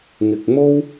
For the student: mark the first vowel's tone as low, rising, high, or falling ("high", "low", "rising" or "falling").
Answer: low